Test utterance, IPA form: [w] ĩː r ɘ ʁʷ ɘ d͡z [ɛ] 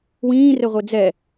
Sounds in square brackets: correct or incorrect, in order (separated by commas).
correct, correct